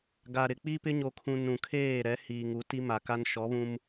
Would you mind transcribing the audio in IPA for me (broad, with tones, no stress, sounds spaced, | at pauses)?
ɡ a˨ ɾ ɪ˨ k͡p i˦ p ɪ˦ ɲ o˨ kʰ ũ˨ n ũ˨ kʰ eː˦˨ ɾ ɛ˨˦ h iː˨ ŋ u˨˦ t i˦ m a˨ k a˦ n ʃ ɔ˨˦ β ũ˦ m